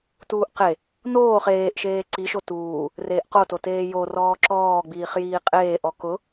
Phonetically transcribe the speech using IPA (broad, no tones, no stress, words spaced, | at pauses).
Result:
tuːʔqe | noːχ eːʔʃeː ǀiʃo tuː | reːʔqototeː jo rɔːǁɔːɡ͡biːχjiː qʼeːʔɔ kʊ